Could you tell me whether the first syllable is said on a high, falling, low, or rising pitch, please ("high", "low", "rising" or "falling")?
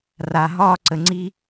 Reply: low